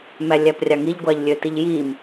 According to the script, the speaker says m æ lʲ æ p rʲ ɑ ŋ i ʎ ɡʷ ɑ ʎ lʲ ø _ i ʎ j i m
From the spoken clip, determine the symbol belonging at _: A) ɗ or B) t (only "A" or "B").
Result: B